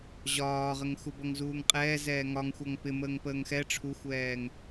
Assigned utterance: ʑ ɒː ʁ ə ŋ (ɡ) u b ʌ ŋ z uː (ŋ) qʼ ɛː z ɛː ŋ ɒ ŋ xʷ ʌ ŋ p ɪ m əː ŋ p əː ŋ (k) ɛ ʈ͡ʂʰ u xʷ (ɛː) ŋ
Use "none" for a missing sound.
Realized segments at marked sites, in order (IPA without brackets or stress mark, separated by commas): x, ŋ, x, ɛː